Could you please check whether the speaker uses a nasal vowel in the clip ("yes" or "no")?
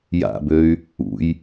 no